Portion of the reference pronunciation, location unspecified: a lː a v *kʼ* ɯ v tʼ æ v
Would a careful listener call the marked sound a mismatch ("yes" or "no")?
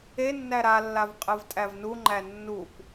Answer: yes